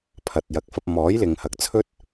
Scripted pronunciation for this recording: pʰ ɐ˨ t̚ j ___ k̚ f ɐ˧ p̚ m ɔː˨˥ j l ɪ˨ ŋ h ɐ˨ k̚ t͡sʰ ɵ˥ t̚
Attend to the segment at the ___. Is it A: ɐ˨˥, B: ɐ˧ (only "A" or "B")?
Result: A